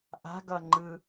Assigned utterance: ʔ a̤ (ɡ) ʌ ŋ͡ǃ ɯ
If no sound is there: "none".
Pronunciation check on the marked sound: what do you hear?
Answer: ɡ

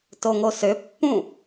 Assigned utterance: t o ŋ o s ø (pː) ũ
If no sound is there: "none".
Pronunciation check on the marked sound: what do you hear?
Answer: pː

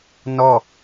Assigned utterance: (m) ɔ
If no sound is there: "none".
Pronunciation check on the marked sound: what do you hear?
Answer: n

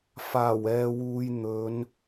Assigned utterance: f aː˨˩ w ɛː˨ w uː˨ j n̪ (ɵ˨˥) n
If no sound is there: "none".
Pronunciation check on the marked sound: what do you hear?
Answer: ɵ˨˧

